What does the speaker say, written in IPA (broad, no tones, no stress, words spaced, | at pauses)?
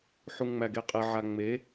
ħuŋŋ͡mæɡeqʼe ʕaŋ͡me